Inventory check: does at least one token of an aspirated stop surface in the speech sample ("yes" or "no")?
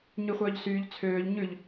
yes